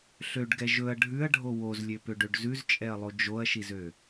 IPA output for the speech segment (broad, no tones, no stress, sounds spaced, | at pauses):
ɬ ø ɖ ɡ ɛ ʒ ɵ ɐ̯ ɖʱ ʉ ɐ̯ ɖʱ o w o z lʲ ø p ø ɖ ø ɖ z ʉ z t͡ʃʼ ɛ ɐ̯ lˠ o d͡ʒ o ɐ̯ ʃ i z ø